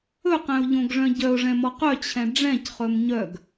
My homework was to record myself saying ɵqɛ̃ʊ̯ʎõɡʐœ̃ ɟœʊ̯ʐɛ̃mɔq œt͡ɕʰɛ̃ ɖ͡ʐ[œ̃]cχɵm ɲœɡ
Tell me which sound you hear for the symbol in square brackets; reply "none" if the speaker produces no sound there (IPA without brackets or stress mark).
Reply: ɛ̃